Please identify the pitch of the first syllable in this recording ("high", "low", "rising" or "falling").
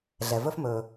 low